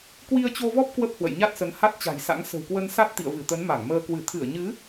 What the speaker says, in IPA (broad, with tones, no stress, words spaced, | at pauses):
kwi˧ə̯t͡ɕo˧vɔ˦˥p̚ kwə˦˥p̚hwə̰˧˨jɲa˦˥t̚sə˨˦n ha˦˥t̚t͡ɕa̤˨˩jsa̰˧˥ŋ sə̤˨˩wkwə˧nsa˦˥t̚ t̪ḭ˧˨ə̯vɨ˧˩t̪ə˨˦n ma˧˩ŋməː˧ kwɨ˧˩t̪ʰɨ˧˩ə̯ɲɨ˨˦